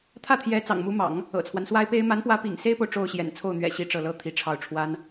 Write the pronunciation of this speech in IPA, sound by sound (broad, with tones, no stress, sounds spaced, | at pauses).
t̪ʰ ä˥˩ t̪ʰ j ɛ˧˥ t͡s ɑ̰˨˩ ŋ m u˧˥ m ɑ̰˨˩˦ ŋ | ɤ̰˨˩ t͡sʰ w a˦ n s w a˥ ɪ̯ p e˥ ɪ̯ m a˧˥ n p w ä˧˥ p ḭ˨˩ ŋ s e˥ ɪ̯ p o˨ ʊ̯ ʈ͡ʂ o˥˩ ʊ̯ ɕ j ɛ̰˨˩ n t͡sʰ o˥˩ ʊ̯ n̪ ɥ ɛ̰˨˩ ɕ i˥˧ ʈ͡ʂ ɤ˥˩ l ɤ˥ t̪ʰ i˧˥ ʈ͡ʂʰ ɑ˥˩ ʊ̯ ʈ͡ʂʰ w a˥ n